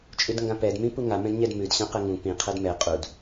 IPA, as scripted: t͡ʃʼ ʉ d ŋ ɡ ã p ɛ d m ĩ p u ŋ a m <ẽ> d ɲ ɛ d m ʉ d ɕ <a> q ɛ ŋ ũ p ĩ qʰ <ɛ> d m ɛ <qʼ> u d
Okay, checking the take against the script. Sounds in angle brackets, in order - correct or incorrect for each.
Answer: incorrect, incorrect, correct, correct

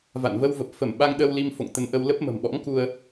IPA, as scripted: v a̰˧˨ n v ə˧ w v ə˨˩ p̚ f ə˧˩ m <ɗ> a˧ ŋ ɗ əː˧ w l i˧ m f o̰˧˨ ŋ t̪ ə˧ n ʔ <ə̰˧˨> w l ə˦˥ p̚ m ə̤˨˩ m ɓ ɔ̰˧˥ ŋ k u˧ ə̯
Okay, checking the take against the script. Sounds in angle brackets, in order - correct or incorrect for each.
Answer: incorrect, incorrect

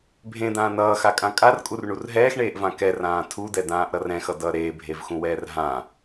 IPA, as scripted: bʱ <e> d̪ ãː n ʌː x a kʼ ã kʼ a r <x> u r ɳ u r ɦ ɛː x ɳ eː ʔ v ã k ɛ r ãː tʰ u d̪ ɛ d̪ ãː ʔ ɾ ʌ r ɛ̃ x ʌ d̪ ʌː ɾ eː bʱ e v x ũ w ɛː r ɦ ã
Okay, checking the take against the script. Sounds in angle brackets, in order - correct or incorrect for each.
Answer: incorrect, incorrect

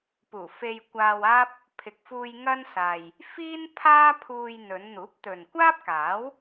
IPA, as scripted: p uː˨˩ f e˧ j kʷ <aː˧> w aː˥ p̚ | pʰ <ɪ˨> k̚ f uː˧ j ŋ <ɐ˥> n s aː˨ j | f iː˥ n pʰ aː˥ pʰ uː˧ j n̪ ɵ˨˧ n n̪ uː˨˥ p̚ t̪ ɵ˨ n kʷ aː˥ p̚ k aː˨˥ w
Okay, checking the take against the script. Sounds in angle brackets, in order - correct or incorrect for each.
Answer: correct, correct, correct

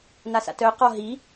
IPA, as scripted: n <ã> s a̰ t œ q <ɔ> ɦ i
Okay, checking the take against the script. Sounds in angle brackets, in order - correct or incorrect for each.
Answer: incorrect, correct

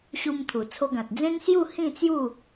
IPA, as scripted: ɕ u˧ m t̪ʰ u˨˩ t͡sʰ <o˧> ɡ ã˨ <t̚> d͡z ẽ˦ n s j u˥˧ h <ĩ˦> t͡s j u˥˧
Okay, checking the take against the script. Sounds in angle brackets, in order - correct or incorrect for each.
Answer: correct, correct, incorrect

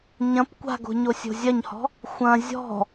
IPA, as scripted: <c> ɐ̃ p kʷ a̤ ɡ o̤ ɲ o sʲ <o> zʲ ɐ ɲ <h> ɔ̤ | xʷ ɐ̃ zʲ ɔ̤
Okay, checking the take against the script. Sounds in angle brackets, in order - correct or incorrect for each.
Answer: incorrect, incorrect, correct

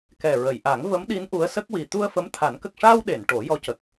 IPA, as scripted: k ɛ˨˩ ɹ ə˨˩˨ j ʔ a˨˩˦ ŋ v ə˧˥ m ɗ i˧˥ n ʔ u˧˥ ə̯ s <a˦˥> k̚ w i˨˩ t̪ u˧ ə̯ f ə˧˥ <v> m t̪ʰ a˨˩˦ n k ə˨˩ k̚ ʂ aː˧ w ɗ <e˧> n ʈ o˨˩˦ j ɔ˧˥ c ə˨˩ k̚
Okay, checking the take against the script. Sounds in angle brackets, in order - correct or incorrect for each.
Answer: incorrect, incorrect, incorrect

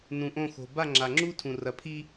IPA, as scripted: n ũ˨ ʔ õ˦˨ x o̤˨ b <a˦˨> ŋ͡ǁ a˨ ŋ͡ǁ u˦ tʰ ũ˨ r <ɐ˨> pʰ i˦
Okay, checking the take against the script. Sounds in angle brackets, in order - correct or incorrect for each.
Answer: correct, correct

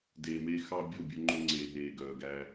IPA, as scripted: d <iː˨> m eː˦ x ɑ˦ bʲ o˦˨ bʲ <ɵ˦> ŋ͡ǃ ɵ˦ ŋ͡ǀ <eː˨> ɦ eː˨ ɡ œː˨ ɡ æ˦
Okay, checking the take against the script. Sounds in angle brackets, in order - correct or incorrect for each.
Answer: incorrect, correct, correct

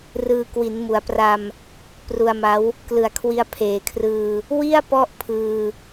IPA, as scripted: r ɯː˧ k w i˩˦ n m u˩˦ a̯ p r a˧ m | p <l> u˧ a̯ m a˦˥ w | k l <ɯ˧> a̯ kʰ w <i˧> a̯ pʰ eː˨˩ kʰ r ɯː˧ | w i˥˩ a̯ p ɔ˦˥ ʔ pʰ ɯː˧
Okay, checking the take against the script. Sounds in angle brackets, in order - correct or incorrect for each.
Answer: incorrect, incorrect, correct

